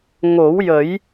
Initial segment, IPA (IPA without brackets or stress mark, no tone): ŋ